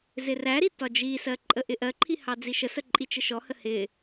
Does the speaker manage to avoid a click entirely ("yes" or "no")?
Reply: no